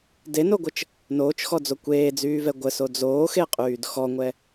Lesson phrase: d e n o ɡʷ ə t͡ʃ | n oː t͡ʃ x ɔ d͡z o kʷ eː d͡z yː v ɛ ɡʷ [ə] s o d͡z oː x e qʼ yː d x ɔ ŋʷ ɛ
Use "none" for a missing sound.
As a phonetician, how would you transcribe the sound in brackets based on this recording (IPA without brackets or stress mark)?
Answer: ə